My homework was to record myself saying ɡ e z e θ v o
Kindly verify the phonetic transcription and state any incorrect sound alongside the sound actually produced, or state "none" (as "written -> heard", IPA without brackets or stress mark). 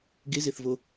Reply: none